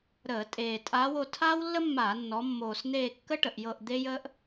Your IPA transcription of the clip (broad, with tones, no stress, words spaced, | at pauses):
ɾəː˧˩˧tʼeː˨˩ tʼaː˧˥wo˩˧ tʰaː˥wlːə˥mːaː˧˩˧nːɔ˩˧ mːoː˨˩sn̪eː˦˨kːə˥ʈə˨˩ʔ jɤ˦˨ʔ d̪e˥jəː˥ʔ